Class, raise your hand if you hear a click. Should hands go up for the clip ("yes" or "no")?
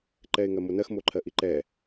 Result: yes